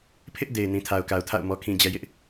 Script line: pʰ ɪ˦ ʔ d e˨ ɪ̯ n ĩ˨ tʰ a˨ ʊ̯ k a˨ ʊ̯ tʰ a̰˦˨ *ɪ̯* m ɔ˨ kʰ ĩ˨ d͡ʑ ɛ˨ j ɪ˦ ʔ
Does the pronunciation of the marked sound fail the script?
yes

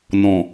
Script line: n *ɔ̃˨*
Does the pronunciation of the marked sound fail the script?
no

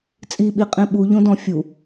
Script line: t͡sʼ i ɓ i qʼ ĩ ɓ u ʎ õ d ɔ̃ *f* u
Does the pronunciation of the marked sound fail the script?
yes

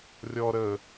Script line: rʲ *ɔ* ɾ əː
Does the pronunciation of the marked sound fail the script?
no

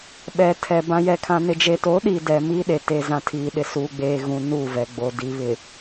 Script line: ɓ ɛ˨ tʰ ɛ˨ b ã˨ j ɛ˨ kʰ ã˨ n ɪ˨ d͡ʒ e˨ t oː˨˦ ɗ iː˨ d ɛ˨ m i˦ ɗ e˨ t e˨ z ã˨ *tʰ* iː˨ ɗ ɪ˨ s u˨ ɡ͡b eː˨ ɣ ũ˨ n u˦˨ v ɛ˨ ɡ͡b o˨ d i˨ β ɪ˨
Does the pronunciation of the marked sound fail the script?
no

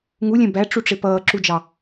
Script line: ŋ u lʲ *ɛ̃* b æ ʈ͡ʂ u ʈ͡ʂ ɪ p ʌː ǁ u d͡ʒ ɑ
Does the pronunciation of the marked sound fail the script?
no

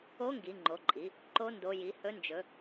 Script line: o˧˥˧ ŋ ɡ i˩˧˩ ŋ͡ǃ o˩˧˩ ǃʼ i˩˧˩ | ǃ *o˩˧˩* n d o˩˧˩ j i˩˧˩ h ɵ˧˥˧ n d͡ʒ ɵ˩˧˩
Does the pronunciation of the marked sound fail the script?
yes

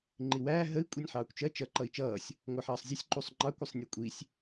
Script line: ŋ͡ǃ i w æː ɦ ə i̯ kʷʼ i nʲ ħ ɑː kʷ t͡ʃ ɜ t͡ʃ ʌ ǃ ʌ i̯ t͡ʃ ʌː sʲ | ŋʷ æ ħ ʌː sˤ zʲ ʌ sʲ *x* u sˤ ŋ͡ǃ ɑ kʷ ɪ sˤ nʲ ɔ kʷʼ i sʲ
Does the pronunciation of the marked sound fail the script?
yes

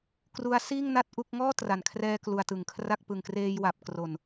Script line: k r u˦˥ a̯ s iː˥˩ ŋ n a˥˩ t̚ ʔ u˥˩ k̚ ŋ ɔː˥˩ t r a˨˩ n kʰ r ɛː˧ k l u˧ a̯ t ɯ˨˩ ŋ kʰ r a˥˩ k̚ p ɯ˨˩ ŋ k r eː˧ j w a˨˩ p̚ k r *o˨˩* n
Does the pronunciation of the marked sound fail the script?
no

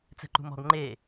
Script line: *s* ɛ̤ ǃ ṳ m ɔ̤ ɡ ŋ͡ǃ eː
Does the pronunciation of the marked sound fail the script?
yes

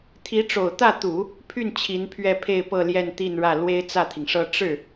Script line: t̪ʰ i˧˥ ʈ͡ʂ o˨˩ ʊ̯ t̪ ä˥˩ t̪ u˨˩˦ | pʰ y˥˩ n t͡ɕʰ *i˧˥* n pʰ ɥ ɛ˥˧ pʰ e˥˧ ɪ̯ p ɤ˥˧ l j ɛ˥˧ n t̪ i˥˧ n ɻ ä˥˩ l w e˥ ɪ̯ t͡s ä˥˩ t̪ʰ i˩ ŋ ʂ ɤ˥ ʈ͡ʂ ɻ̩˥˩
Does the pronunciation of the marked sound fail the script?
no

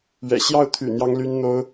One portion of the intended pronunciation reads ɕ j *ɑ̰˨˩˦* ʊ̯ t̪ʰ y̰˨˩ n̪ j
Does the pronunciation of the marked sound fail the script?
yes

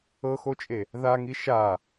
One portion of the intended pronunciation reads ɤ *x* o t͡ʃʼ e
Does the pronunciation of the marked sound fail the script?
no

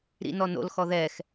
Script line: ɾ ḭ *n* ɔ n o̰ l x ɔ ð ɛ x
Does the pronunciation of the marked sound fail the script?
no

